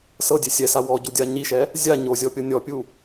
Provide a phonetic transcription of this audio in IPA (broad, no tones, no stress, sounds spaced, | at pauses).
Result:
s ɤ dʲ e sʲ ɛ s a w ɔ ɟ u dʲ a ɲ i ʃ ɛ | zʲ a ɲ o zʲ ɔ pʲ ɤ nʲ ɔ pʲ u